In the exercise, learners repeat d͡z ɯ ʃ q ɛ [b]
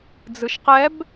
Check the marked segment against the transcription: correct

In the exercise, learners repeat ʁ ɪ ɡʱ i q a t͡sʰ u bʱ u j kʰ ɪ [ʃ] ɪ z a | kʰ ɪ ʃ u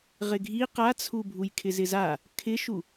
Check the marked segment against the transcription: incorrect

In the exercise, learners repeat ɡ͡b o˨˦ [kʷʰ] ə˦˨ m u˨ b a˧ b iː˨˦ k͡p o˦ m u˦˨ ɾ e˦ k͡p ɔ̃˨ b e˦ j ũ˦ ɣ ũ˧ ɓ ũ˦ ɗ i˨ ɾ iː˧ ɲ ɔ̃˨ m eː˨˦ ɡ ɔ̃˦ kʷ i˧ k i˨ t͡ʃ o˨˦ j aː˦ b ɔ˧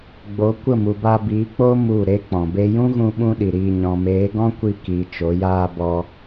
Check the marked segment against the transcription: incorrect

